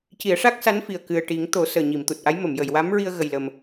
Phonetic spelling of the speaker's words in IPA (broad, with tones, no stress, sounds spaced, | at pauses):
c i˨˩˦ ə̯ ʂ a˦˥ k̚ s a˧˥ n f i˨˩ ə̯ k ɨ˨˩ ə̯ ʈ i˨˩˦ ŋ t̪ o˨˩˦ s əː˨˩ ɲ i˨˩˨ m t̪ u˨˩ t̚ ʔ a˧˥ j m ə˨˩˨ m j ə˨˩˨ j w a˧˥ m ɹ i˧ ə̯ ɣ ə˨˩ j l ə˨˩ m